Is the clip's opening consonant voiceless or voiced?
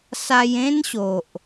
voiceless